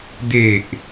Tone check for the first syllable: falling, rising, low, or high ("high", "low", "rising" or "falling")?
low